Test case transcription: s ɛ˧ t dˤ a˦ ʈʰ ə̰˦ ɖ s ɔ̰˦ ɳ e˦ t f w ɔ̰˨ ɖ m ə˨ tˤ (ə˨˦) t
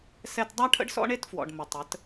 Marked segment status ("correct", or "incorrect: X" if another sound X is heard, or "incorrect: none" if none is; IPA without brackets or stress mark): correct